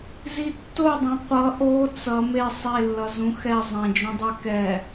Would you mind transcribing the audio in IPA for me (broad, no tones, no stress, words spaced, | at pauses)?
zitːodˤõ qʷʌ ʔo t͡sʌ me sˤelːʌzũ xɛ zˤɛ̃d͡ʒũdˤɛ kɛ